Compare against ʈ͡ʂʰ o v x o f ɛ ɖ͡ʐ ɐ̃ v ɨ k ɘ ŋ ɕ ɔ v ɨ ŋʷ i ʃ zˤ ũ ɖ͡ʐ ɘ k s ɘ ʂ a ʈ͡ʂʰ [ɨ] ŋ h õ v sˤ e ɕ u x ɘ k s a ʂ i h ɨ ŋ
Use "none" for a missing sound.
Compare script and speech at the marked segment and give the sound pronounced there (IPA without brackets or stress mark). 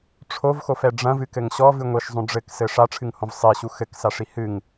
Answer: ɨ